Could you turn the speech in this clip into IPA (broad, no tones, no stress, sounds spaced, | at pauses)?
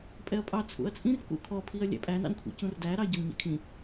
pʼ ɛ ɐ̯ pʼ ɑ t͡sʰ ṵ ɐ̯ t͡sʼ ĩ r k ṵ kʰ ɔ pʰ i ɐ̯ lʲ æ̰ pʼ æ n ɑ̰ n kʷʰ ḭ c ũ r d æ ɾ ɑ ɟ ʌ n ɲ ɛ̰ kʰ ĩ